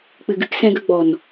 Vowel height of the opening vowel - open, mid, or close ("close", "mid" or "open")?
close